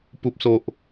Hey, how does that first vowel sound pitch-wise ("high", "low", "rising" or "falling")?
low